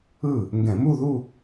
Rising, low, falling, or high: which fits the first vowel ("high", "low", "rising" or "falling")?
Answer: falling